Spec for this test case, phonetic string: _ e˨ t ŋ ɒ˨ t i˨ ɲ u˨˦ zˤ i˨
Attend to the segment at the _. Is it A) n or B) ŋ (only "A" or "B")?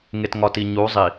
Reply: B